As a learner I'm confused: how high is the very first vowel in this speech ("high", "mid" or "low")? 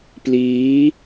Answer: high